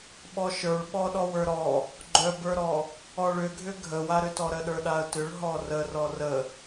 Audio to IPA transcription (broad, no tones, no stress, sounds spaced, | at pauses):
ɓ ɔ ʃ ə˞ ɭ ɓ ɔ ɗ ɔ w ə˞ ɾ ɔ | ɡ͡ǃ œ b ə˞ ɾ ɔ | ɔ ɭ ʏ ɡʱ ʏ ɡʱ ə w a ɾ ʏ t ɔ ɾ ə ɗ ə˞ ɗ a ə̯ t ʏ ɭ ɦ ɔ r ə r ɔ r ə